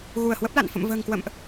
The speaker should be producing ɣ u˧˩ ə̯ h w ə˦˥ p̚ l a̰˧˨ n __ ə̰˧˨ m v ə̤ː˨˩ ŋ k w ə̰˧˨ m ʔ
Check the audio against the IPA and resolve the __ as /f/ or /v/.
f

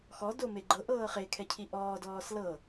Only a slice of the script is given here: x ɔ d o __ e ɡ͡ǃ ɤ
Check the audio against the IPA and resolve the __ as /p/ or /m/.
m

